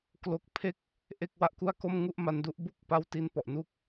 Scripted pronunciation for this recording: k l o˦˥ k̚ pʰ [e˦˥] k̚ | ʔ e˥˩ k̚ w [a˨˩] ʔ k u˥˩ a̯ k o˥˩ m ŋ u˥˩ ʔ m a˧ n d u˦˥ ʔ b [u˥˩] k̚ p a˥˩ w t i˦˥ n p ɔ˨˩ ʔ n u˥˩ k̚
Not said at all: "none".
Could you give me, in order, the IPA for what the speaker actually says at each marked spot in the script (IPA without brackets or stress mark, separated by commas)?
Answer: e˥˩, a˥˩, u˥˩